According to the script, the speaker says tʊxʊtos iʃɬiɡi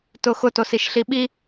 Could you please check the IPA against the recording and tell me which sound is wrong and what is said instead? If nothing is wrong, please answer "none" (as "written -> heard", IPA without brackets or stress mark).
ɡ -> ɓ